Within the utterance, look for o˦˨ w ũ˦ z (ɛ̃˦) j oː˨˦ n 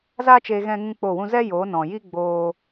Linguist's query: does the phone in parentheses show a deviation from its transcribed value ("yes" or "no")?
yes